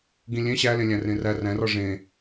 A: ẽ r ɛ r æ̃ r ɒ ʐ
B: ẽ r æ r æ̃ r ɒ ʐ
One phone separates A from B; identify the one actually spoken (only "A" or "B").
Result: B